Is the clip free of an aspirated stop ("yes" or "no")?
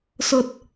yes